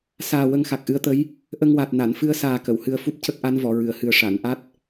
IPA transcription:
saː˨˩ wə˧ŋxa˨˩k̚ʔɨ˧ə̯t̪ə˧˥j | ʔə˧ŋwa˨˩t̚ na˨˩˨nfɨ˧ə̯saː˨˩ kə˨˩˨whɨ˧ə̯fu˦˥p̚ cə˦˥k̚ʔa˧˥n vɔ˨˩˨ɹɨ˨˩˨ə̯hɨ˨˩ə̯ ʂa˨˩˨n ʔa˦˥t̚

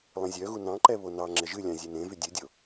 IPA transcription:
lˠẽzʲœɣu nɑ̃ǃɛ βonɑŋ͡ǁɛ ʒɨlʲɑ̃ zʲenẽvy dʲɨdʲo

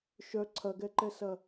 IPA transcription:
ʃœ ǀʰɐɡɛǃɛsɐ

